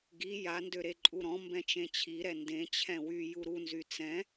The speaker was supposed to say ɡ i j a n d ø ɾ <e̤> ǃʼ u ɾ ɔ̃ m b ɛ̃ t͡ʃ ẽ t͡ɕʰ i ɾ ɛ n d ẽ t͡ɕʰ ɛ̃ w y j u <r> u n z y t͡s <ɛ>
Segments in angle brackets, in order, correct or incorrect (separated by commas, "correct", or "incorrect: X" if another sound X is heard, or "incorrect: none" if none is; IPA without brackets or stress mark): incorrect: e, incorrect: ɾ, incorrect: ɛ̃